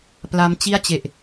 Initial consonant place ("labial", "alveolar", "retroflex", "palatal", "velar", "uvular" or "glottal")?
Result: labial